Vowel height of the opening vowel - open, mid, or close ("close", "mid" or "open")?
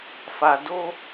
open